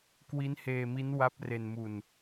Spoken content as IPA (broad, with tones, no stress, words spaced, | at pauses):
kwi˦˥nheː˧mi˦˥n wa˦˥p̚ re˧nmu˧n